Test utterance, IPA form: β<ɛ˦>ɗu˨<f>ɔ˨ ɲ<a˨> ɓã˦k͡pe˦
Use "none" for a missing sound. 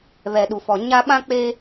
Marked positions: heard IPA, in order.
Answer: ɛ˨, f, a˦

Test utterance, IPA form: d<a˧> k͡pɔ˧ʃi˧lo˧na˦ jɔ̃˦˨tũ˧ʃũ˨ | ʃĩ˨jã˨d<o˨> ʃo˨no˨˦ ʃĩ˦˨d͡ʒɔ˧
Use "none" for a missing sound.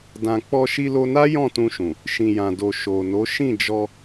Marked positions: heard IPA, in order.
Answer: ã˧, o˨

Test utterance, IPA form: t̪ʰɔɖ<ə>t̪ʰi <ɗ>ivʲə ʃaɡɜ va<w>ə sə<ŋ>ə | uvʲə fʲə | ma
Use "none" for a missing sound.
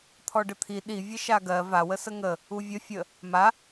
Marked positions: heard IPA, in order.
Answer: ə, ɗ, w, ŋ

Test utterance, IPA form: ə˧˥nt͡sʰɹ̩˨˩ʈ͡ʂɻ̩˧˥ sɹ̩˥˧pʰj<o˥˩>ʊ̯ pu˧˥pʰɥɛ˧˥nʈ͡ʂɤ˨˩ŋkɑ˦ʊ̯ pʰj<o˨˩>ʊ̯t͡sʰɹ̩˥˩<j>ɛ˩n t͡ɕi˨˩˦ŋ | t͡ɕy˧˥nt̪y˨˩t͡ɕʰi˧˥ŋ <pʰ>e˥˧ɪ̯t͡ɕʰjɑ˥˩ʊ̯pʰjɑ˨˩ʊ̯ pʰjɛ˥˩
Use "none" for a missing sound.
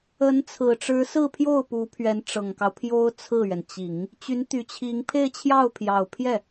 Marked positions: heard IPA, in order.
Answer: o˥˩, o˥, ɥ, pʰ

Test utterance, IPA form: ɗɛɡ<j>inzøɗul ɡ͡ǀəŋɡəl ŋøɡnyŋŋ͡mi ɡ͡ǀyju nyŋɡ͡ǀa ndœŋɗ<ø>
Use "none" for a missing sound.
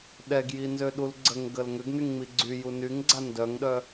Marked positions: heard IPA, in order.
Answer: j, œ

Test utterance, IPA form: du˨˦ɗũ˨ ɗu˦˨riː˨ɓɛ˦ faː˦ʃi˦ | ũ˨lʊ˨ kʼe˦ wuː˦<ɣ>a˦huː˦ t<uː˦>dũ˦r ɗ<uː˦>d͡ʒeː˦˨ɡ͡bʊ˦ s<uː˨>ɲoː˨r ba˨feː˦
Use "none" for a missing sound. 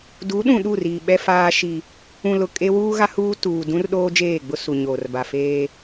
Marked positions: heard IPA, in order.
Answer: ɣ, uː˨, oː˦, u˨

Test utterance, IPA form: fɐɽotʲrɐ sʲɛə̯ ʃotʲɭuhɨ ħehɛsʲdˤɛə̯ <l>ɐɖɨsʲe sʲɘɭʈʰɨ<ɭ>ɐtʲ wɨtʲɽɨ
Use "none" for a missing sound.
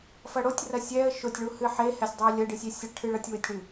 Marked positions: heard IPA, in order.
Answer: lʲ, ɭ

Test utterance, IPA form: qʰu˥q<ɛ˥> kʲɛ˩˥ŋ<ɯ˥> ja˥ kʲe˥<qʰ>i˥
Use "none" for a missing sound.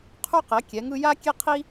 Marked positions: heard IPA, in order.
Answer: ɛ˩˥, ɯ˥, qʰ

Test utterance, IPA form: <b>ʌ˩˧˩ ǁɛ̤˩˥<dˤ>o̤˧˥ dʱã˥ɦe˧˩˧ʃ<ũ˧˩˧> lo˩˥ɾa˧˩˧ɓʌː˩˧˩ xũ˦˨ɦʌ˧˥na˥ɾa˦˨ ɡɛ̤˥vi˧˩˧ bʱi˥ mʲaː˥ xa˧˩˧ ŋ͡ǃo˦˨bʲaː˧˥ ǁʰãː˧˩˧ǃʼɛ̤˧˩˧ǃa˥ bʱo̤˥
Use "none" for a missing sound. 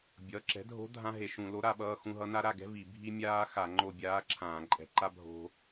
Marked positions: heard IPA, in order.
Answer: bʲ, dʱ, ũ˧˩˧

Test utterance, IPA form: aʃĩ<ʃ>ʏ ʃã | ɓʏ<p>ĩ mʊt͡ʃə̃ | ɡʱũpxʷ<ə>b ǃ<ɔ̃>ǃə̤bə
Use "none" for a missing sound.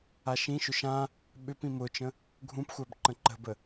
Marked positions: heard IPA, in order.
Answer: ʃ, p, a, ə̃

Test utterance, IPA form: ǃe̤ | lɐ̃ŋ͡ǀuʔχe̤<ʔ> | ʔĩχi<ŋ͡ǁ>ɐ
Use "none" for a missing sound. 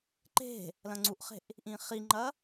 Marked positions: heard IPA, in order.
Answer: ʔ, ŋ͡ǃ

